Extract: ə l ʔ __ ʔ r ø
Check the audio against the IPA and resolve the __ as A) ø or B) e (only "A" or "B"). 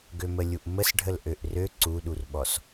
A